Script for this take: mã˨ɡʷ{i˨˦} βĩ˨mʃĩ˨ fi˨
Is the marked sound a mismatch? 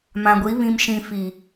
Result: no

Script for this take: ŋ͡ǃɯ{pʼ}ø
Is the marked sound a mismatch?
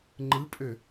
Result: no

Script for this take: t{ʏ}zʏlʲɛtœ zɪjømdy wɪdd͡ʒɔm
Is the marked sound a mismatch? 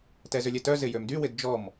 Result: yes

